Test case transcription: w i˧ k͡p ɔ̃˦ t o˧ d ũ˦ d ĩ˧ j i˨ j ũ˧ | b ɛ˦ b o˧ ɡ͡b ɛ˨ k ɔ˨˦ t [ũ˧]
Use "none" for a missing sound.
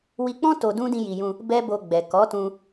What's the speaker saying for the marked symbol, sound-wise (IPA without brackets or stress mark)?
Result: ũ˧